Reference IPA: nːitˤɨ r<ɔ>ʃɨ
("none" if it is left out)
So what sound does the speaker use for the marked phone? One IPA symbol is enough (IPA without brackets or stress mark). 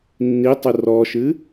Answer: ɔ